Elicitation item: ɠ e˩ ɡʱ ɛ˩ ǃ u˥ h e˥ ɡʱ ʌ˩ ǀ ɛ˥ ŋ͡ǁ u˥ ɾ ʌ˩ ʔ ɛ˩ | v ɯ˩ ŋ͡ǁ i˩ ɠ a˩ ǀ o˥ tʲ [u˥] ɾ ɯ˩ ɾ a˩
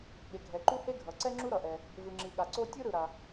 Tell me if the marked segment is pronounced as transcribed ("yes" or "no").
no